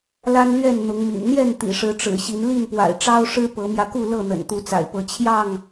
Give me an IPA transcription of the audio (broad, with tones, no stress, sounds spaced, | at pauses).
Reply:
l a˦ n l ɥ ɛ˥˨ n n̪ ʊ˨˦ ŋ m ḭ˨˩ n n̪ j ɛ˥˨ n t̪ ḭ˨˩ ʂ ɻ̩˨˦ ʈ͡ʂ ɻ̩˨˩ ɕ i˨˦ n l i˥˨ n p w a̰˨˩ ɪ̯ ʈ͡ʂ ɑ˦ ʊ̯ ʂ ɻ̩˦ p ɤ˨˦ m j ä˧ k u˥˨ l ɤ˥˨ n̪ ə̰˨˩ n t̪ u˨˦ t͡s a̰˨˩ ɪ̯ p ɤ˨˦ t͡ɕʰ j ɑ˥˨ ŋ